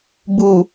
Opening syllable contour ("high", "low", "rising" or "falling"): low